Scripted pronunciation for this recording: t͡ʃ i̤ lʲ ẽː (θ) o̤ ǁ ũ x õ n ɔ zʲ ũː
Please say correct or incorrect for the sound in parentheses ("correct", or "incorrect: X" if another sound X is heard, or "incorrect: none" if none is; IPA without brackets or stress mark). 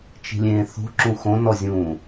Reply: correct